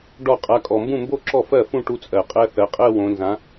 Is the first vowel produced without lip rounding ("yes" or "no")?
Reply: no